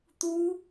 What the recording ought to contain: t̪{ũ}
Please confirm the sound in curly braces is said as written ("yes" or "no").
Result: no